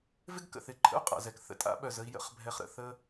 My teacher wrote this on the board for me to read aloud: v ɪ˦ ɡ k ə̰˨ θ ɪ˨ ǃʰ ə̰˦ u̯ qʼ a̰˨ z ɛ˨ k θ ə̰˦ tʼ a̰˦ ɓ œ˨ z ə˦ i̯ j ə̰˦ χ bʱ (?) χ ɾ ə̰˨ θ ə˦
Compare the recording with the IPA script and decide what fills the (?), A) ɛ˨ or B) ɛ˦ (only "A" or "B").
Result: B